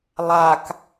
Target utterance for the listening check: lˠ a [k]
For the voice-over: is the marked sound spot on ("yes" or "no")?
yes